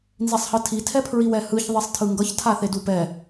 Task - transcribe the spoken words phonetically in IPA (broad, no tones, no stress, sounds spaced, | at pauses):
n z i sˤ h ɯ tʰ i tʰ ɛ pʰ ɹ i w ɛ h ɯ ç ðˤ i sˤ tʰ ɯ ŋ ɡ ʌ ç tʰ a θ e d u p ɛ